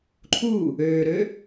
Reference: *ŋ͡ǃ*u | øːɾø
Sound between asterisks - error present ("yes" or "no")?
yes